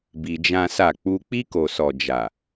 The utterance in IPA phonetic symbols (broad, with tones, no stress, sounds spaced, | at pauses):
b i˧ d͡ʒ ã˦ s a˦˨ k͡p u˧ k͡p i˧ k o˨ s ɔ˨ d͡ʒ a˨